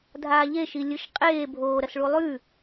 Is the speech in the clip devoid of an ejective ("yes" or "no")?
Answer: no